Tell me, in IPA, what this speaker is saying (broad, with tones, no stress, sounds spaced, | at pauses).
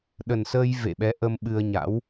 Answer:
ɗ ə˨˩ n s əː˧ j v ḛ˧˨ ɓ ɛ˨˦ ʔ ə˧ m ɓ ɨ˧ ə̯ ɲ a̰˧˥ w